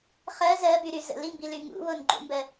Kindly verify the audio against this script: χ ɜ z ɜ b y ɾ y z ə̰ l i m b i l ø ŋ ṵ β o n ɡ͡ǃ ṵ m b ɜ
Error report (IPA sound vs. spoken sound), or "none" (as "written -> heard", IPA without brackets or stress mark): ø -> y